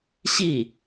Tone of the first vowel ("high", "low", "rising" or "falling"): falling